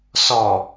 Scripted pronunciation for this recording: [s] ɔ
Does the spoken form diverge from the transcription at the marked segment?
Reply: no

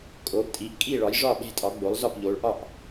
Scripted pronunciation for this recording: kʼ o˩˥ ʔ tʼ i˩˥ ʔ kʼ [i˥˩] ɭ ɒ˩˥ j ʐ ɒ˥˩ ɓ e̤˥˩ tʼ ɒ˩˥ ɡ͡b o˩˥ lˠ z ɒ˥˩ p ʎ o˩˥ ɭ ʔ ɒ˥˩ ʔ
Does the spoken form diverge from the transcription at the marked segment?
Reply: no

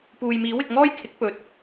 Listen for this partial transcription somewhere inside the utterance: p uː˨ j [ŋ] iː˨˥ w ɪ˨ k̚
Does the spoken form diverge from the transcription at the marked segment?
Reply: yes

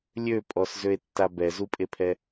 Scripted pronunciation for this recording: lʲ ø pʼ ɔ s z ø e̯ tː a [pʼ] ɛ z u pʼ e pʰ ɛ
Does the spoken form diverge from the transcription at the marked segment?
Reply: yes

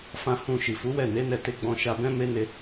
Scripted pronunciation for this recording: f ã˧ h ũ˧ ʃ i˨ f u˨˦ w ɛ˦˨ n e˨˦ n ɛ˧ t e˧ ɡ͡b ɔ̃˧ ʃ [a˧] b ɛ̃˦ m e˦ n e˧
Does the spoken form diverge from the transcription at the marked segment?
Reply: no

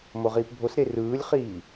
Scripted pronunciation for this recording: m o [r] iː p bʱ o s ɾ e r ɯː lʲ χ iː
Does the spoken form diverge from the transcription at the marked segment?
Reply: yes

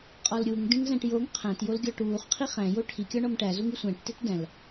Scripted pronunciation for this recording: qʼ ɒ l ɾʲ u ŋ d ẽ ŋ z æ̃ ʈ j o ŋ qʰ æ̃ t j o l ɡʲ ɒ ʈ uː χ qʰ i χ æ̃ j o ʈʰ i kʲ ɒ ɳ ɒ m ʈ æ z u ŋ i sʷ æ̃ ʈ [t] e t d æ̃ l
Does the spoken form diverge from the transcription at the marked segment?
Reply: no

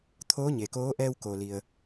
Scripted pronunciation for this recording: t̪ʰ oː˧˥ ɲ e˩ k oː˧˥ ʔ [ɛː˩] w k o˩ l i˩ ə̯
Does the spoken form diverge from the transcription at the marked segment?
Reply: yes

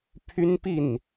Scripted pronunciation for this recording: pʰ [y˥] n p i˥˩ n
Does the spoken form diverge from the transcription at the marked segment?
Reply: no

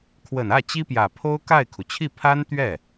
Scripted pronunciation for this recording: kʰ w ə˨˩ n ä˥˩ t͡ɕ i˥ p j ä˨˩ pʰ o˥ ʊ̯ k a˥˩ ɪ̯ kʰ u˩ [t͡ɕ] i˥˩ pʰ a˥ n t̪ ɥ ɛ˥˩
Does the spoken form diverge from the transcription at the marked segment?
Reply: yes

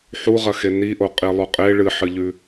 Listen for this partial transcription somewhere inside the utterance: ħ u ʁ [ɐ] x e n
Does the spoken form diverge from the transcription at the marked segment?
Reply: no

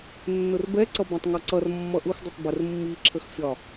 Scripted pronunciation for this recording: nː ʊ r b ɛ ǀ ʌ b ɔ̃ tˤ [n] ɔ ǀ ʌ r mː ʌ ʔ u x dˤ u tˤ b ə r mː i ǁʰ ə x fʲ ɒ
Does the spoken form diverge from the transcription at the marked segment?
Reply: yes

